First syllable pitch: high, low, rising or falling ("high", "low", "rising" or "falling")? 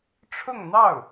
falling